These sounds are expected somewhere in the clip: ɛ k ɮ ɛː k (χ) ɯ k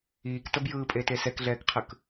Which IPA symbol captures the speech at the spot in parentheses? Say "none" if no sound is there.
qʰ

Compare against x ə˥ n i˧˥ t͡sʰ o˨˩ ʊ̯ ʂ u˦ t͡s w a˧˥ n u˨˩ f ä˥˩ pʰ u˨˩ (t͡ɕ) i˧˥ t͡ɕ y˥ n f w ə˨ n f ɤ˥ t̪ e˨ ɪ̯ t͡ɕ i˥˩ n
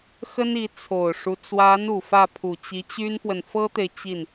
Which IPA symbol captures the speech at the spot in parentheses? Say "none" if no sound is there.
t͡ɕ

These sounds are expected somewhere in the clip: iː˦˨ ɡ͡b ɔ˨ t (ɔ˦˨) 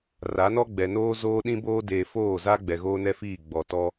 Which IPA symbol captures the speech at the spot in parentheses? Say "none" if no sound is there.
ɔ˦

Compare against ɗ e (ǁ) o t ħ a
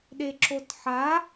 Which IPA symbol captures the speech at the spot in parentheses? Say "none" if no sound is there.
ǁ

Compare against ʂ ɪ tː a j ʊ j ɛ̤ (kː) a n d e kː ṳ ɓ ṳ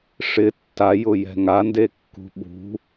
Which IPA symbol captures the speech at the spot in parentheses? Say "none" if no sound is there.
ŋ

